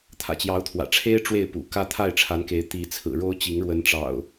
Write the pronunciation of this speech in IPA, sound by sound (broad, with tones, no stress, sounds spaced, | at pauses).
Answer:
t̪ʰ ä̰˨˩ t͡ɕ j ɑ˨˦ ʊ̯ t̪ʰ w ä̰˨˩ ʈ͡ʂʰ e˦ ɪ̯ ʈ͡ʂ w e˥˨ ɪ̯ p ṵ˨˩ k ä˦ t̪ʰ a˥˨ ɪ̯ ʈ͡ʂʰ a˨˦ n k e˨˦ ɪ̯ t̪ i˨˦ t͡sʰ ɹ̩˨˩ ɻ o˦ ʊ̯ t͡ɕ i˨˦ ŋ ɻ w ə˨˦ n ʈ͡ʂ ɑ̰˨˩ ʊ̯